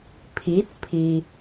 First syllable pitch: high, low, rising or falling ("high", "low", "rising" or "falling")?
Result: rising